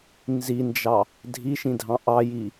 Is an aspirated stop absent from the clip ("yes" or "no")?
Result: yes